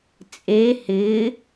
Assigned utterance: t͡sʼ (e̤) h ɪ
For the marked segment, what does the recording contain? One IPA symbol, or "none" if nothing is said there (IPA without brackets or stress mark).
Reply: e